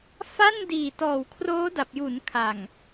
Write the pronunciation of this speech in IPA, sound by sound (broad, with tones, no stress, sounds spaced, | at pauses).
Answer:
f a˥˩ n d iː˨˩ t ɔː˨˩ w kʰ r oː˦˥ d a˨˩ p̚ j uː˩˦ n kʰ a˨˩ ŋ